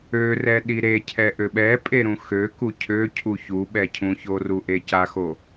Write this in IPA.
ø r ɛ ɗ i ɾ e cʰ ɛ ʔ ø ɓ ɛ pʼ e ɾ ũ x ø k u cʰ ø cʰ u ç u ɓ ɛ cʰ ũ ç o r u ʔ e c a x o

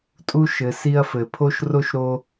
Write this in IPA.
tʼ u˦ ʃ ɘ˨ s i˦ ɐ̯ f ɘ˩ pʰ o˥ ʃ r o˥ ʃ ɾ o˥

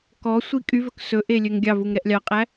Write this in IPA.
k ɔ sʷ i kʼ y v ɵ k s ɵ ʔ e lʲ ø ŋ ɡʲ ɑ v u ŋ ɾ ɛ ʔ lʲ ɑ qʼ æ

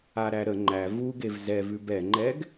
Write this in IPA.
a ɾ æ ɾ ə ŋ͡ǃ æ v u ɡ e v z ɛ v ʉ b ɛ ŋ͡ǃ ɛ ɡ

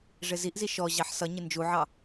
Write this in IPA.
ʐ ɪ z i ʔ z i ʃ ɔ ʑ ɑ ħ s ʌ ɲ ɪ n d͡ʒ u ʕ ɑ

